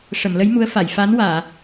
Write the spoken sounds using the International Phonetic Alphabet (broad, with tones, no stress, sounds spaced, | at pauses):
ʂ ə˨˩˨ m l ə˧˥ j m u˧˥ ə̯ f a˨˩˨ j f a˧˥ n w aː˨˩˨